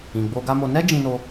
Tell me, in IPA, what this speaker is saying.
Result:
ĩ˨ ɡ͡b o˧ ɡ a˦ m o˧ n ɛ˦ d͡ʒ ĩ˦ n o˦

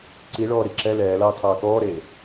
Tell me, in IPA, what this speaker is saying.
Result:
ǀ i ɭ ɔː ɾ i ǁ ɛ l ɛː l ɑː tʰ ɑː k ɔː ɾ eː

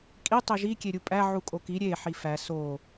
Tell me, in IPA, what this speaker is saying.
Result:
kʼ i tˤ e ʒ i kʲ e ɾʲ u pʼ æ ʕ u kʼ o k i ɾʲ e ħ i f æ s o

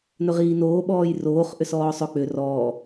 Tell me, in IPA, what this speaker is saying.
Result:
n ɵ ʁ iː n oː ɓ ɔː j r oː χ ʔ ʏ s ɔː sˤ ɵ k͡p ʏ r ɔː

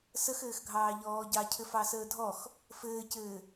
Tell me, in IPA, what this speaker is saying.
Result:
s ə x ɘː x ɡʱ ɑː ʎ ɔː ɟ ɑ cʰ ɘ f ɑ s əː dʱ ɔ x | f ɘː c ɘː

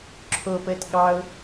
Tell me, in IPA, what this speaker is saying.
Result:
ǁʰ o p əː t ɠ ɑ ʊ̯

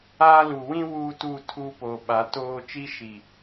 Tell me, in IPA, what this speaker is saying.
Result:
aː˦ l u˨ w ĩ˦ w uː˦ t uː˦˨ tʰ uː˦ p oː˨ ɓ a˨˦ t oː˦ t͡ʃ i˦ ʃ i˨

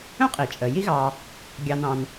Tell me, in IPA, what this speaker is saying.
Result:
œ̃˥ qʼ i˩ t͡ʃʼ ə˩ j i˦ ɣ ɑ˨ | ɡʲ ɑ˨ n ɑ̃˨ n

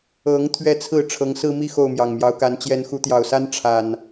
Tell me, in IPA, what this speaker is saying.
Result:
ɤ˨˦ ŋ t̪ʰ ɥ ɛ˦ t͡sʰ ɹ̩˥˨ ʈ͡ʂʰ ɤ˨˦ ŋ s ɹ̩˦ m i˥˨ x o˥˨ ʊ̯ m j ɑ˨˩ ŋ m j ɑ˨˦ ʊ̯ k a˨˦ n t͡ɕ j ɛ˨˦ n x u˨˦ t̪ j ɑ˨˩ ʊ̯ s a˦ n ʈ͡ʂʰ a˨˩ n

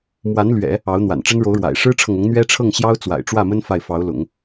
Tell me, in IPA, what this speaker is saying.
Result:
m w a˧˥ n l ɥ ɛ̰˨˩˦ | ɑ˧˥ ʊ̯ n̪ w a̰˨˩ n ʈ͡ʂ ə˥ n ɻ o˧˥ ʊ̯ ɻ w a̰˨˩ ɪ̯ ʂ ɻ̩˥ ʈ͡ʂʰ ɤ˨ ŋ ʊ˧˥ ŋ n̪ ɥ ɛ˥ ʈ͡ʂʰ ɤ˥˩ ŋ ɕ j ɑ˥ ʊ̯ t͡s w a̰˨˩ ɪ̯ ʈ͡ʂ w ä˥˩ m ə˥ n f a˥˩ ɪ̯ f ɑ˧˥ ʊ̯ l ʊ̰˨˩˦ ŋ

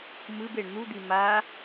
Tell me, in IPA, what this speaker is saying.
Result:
m ɯ b e ɳ n̪ u d̪ i m a

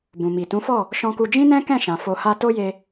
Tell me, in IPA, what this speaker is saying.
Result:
b ũ˨ m i˨ t ũ˨˦ f ɔ˦˨ | ʃ ɔ̃˧ k u˧ d͡ʒ ĩ˦ n ɛ̃˦ k ɛ̃˦˨ ʃ ã˨ f o˧ h a˦ t o˦ j e˧

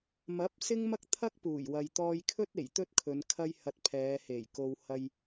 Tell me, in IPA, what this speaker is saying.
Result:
m ɐ˨˥ p̚ s ɪ˥ ŋ m ɐ˥ k̚ t̪ʰ ɐ˥ k̚ p uː˨˩ j w ɐ˨ j t̪ ɔː˧ j kʰ ɵ˥ t̚ e˨˩ j t̪ ɵ˥ t̚ kʰ ɵ˨˧ n kʰ ɐ˥ j h ɐ˧ t̚ pʰ ɛː˨˧ h e˨˩ j k o˧ w h ɐ˧ j

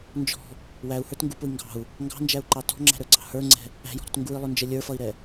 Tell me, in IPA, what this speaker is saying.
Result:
n d͡ʒ ɔ̤ | w æ u̯ h ə˞ t ŋ ɡ u p ʊ i̯ ŋ ɡ ɑ̤ u̯ | ŋ ɡ ɑ̤ n d͡ʒ æ u̯ ǃ ɑ t ɔ̤ ŋ͡ǁ æ̤ ɾ ə˞ ǀ ɑ̤ h ə˞ ŋ͡ǀ ɛ̤ | æ̤ j ɔ̤ ɾ ɔ̤ t ŋ ɡ u i̯ lˠ ʊ n d͡ʒ ə lʲ ə˞ f ʌ i̯ ɾ ɛ

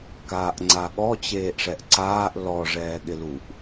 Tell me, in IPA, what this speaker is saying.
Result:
k aː ʔ ŋ͡ǀ a ɠ ɔ t͡ɕ eː ʔ ʂ ɛ ʔ ǀ aː ʔ l ɔ ʐ ɛː ɠ ɪ l u ʔ

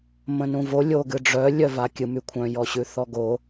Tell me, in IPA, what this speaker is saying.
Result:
m ə̃ n ũ v o lʲ o ɡ ɨ ɖ͡ʐ œ lʲ œ v a kʲ ɨ m y kʷʰ œ̃ j ɔ ɕ ʉ θ ɔ ɡ o

